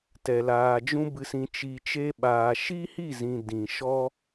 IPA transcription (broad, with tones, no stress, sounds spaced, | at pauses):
t ɛ˨ l aː˨ d͡ʒ ũ˧ b ɨ˨ s ĩ˨ t͡ʃ i˨ t͡ʃ e˧ ɓ aː˨ ʃ i˦ h i˦˨ z ĩ˨ d ĩ˨ ʃ ɔ˦